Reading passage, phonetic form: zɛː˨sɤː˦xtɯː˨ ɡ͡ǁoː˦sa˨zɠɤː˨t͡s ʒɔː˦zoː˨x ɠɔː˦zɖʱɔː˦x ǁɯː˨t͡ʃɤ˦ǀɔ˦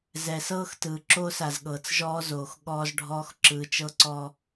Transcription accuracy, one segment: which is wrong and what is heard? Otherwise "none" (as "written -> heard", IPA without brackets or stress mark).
ɡ͡ǁ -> ǁ